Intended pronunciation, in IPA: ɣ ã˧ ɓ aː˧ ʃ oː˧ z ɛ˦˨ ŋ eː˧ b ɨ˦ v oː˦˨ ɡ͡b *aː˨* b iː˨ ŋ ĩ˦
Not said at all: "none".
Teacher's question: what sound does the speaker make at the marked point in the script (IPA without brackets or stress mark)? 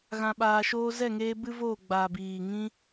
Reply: aː˨